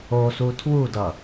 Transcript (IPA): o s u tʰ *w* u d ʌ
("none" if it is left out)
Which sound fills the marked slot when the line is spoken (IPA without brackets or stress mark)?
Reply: w